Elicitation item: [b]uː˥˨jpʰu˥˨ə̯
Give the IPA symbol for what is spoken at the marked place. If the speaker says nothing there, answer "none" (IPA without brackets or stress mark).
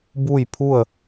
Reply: b